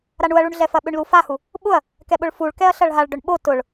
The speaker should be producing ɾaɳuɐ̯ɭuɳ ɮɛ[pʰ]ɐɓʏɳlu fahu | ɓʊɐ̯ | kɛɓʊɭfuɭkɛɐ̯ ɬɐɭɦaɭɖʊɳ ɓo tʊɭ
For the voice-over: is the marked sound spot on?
no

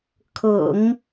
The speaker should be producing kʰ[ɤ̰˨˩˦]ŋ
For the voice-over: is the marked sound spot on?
yes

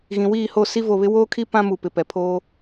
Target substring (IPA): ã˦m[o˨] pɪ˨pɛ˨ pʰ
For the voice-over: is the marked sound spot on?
no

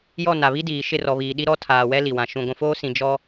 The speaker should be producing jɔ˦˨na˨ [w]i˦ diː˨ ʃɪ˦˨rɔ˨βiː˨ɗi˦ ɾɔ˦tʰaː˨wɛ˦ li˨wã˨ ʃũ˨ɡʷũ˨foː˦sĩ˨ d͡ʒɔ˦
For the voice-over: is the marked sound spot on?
no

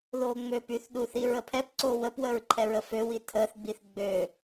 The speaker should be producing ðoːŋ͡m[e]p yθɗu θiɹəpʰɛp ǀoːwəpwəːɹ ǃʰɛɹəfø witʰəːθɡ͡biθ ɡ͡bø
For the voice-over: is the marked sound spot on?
no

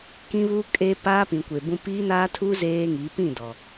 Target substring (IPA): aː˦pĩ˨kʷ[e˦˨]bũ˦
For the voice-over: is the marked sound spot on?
no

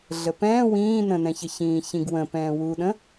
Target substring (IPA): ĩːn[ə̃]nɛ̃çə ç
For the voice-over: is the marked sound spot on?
yes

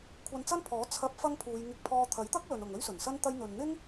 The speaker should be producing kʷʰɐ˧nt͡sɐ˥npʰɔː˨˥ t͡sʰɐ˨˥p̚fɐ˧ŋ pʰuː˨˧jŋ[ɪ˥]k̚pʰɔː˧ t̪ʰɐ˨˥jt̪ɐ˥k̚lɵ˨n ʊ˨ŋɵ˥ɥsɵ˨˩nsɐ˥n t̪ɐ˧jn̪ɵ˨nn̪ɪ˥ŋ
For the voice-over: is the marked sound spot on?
no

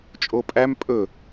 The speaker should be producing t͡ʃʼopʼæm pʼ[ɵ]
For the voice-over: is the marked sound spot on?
yes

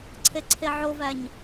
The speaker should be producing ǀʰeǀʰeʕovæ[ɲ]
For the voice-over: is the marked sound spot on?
yes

